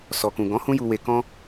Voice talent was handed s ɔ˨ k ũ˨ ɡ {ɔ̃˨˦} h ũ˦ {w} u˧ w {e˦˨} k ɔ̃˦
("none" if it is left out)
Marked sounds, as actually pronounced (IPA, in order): ɔ̃˨˦, j, e˧

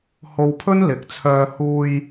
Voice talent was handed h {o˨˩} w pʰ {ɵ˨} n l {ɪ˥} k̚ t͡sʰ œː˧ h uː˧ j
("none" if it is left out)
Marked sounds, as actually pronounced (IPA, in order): o˧, ɵ˥, ɪ˨˥

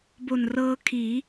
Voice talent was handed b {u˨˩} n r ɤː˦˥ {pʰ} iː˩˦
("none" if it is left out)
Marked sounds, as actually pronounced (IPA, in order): o˨˩, kʰ

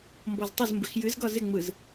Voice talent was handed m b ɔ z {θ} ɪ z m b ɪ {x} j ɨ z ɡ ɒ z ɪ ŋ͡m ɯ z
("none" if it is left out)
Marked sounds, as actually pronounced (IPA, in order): tˤ, x

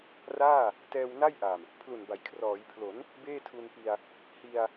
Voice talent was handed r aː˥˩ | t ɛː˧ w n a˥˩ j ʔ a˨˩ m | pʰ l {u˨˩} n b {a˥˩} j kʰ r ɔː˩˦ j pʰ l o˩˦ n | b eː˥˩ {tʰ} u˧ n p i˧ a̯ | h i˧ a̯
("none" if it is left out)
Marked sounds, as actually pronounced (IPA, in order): u˨˩, a˩˦, tʰ

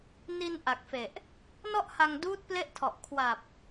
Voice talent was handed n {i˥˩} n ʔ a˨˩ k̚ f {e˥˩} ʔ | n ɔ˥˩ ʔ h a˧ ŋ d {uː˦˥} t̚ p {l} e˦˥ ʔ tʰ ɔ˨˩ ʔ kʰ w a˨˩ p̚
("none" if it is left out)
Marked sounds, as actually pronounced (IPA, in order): i˧, e˨˩, uː˦˥, l

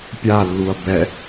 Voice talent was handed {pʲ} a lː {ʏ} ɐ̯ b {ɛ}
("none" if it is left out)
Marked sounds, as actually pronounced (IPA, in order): pʲ, u, ɛ

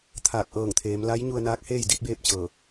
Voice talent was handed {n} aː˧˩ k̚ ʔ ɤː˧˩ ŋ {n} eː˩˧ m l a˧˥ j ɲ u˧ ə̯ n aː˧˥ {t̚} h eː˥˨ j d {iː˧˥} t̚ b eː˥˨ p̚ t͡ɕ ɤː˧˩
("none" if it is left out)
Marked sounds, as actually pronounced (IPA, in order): t̪ʰ, t̪ʰ, k̚, i˧˥

